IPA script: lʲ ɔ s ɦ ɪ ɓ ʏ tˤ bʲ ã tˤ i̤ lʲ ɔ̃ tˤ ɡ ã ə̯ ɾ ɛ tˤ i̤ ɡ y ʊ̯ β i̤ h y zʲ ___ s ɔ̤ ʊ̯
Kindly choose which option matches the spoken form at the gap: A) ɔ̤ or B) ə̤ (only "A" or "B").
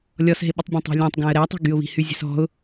B